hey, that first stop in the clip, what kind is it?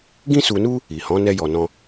plain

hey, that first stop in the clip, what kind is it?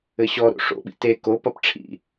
implosive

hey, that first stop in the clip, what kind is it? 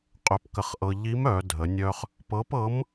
ejective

